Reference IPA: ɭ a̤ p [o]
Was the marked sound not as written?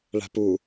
yes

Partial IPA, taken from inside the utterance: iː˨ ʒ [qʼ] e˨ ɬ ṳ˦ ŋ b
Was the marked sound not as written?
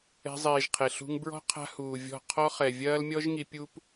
yes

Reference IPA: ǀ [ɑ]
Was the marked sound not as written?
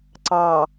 no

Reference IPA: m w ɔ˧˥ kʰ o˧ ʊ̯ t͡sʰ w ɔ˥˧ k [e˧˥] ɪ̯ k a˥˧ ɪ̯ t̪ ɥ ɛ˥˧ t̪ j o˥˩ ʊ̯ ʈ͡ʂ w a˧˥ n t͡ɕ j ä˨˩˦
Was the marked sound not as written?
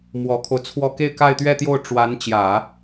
yes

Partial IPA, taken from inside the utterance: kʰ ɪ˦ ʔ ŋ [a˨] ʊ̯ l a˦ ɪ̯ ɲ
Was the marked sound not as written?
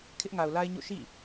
no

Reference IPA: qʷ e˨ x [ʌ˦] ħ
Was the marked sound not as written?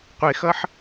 no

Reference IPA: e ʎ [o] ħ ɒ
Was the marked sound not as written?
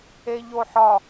no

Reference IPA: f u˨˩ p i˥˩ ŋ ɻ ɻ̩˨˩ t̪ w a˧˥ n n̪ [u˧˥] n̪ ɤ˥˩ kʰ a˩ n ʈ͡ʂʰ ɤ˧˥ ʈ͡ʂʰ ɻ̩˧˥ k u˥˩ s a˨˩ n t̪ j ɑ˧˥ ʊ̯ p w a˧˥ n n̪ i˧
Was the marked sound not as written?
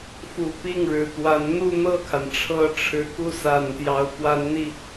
yes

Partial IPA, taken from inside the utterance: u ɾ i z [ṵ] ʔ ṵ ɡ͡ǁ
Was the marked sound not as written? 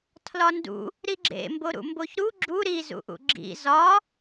no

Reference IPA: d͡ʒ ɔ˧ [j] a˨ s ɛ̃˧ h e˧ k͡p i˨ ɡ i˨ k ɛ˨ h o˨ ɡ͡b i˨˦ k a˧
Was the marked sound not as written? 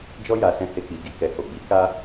no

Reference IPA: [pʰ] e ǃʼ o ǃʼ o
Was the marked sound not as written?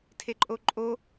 yes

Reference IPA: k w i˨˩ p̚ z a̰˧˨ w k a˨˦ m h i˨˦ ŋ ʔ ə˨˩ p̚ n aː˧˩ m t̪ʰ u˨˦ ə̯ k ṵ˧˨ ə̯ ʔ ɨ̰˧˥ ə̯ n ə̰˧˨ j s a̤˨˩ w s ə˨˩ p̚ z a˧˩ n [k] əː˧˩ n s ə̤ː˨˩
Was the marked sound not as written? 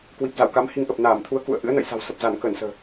no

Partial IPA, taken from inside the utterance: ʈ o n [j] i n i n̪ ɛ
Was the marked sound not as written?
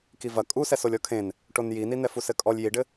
no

